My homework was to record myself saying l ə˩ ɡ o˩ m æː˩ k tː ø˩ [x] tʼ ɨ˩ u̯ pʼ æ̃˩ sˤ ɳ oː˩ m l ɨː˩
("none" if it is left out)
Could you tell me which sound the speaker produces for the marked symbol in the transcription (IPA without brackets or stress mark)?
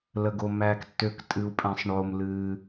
k